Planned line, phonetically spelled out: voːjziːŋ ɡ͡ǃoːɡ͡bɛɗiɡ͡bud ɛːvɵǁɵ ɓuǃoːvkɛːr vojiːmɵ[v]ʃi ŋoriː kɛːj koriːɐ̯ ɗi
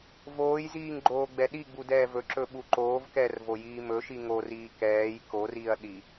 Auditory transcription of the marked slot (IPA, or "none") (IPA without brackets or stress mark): none